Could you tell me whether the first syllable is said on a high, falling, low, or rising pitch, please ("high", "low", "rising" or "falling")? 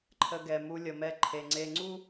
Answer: low